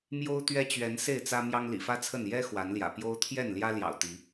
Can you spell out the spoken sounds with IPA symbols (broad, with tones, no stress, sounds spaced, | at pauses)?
m j o˦ ʊ̯ t̪ ɥ ɛ˦ t͡ɕ ɥ ɛ˨˦ n s e˥˨ ɪ̯ t͡s ä˦ m j ɑ˦ ŋ l ḭ˨˩ f ä˦ t͡sʰ ə˥˨ n j ɛ˦ x w a˨˦ n l j ä̰˨˩ p j o˦ ʊ̯ t̪ʰ j ɛ˥˨ n l j ä˦ l j ɑ̰˨˩ ʊ̯ t̪ i˨˦